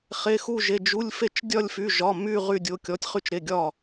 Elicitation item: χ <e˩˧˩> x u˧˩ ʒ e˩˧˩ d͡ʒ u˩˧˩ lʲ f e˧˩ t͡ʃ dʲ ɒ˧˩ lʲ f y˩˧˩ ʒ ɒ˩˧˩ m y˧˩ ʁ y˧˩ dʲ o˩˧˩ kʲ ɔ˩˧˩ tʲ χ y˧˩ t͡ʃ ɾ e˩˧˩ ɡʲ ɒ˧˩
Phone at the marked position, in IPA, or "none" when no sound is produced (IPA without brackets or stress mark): e˩˧˩